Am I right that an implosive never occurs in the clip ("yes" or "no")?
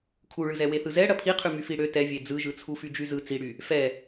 yes